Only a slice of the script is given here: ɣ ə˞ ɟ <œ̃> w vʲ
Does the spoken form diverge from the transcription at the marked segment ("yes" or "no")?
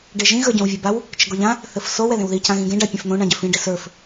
no